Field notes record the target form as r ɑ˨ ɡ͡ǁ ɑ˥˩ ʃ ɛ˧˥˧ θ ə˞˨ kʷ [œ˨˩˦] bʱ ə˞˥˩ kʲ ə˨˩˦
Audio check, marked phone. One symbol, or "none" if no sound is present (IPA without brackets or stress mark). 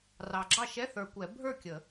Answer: ɛ˨˩˦